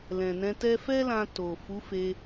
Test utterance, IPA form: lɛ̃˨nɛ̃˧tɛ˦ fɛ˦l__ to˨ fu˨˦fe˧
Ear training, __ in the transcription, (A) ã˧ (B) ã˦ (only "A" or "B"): A